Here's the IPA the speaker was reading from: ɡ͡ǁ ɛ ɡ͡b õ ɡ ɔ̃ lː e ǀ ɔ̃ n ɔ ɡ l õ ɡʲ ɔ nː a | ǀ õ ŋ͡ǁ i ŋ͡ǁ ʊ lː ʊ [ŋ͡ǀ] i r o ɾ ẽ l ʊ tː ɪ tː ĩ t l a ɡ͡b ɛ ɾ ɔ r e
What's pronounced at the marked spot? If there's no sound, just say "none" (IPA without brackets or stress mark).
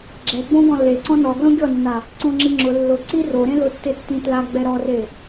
ǀ